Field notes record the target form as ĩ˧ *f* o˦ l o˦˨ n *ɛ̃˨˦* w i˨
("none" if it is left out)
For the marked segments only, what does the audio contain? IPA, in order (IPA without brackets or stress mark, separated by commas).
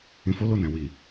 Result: f, ɛ̃˨